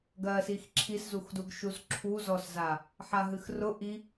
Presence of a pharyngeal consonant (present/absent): present